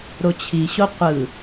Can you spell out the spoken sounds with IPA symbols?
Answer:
ɾ o t͡ɕʰ i ɕ o qʷ ɯ

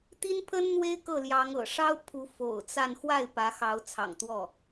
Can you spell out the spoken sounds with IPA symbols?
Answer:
t̪ i˥ n pʰ ə˥ n n̪ w e˥ ɪ̯ k ɤ˥˩ l j ɑ˧˥ ŋ ɤ̰˨˩ ʂ ɑ˥ ʊ̯ pʰ u˧˥ f o̰˨˩ ʊ̯ t͡s a˥˧ n x w a˥˩ ɪ̯ p ä˧˥ x ɑ˧˥ ʊ̯ t͡sʰ ɑ̰˨˩ ŋ t̪ w ɔ˥˩

